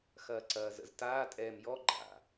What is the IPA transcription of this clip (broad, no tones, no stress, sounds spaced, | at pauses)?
x ɐː ǀ ɐː z ə̰ z t aː tʼ ɛː m j ɔ ɡ͡ǃ a̰